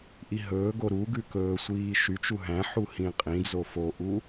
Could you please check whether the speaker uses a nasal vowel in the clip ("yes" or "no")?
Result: yes